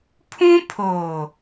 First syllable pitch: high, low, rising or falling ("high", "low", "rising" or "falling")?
high